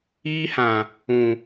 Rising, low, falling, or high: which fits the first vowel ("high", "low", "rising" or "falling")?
high